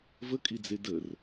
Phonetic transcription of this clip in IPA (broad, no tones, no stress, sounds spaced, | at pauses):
v ə kʼ i d͡z e d ə r